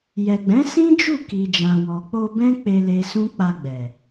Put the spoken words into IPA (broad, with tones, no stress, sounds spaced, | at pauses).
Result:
j ɛ˨ ɡ͡b ɛ̃˨˦ s ĩ˦ d͡ʒ u˦˨ k i˨ d͡ʒ ã˨ w ɔ˨ k͡p o˧ b ɛ̃˦ k͡p e˧ l e˧ s ũ˦ k͡p a˧ ɡ͡b ɛ˨